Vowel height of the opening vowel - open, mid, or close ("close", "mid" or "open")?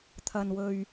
open